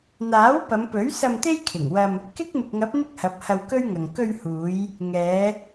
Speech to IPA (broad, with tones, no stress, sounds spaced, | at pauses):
n̪ aː˨˥ w p ɐ˨˧ m p ɵ˨˥ ɥ s ɐ˧ m t̪ e˥ j kʰ ɪ˨˩ ŋ w ɐ˧ m | k ɪ˥ k̚ m ɪ˨ k̚ ŋ ɐ˨˥ p̚ n̪ ɪ˥ k̚ h ɐ˨˥ p̚ h ɐ˧ w k ɵ˥ ɥ ŋ ɐ˨ ŋ k ɵ˧ ɥ h uː˨˧ j | ŋ ɛː˨˧